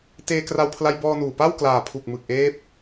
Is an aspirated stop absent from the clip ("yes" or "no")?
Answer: no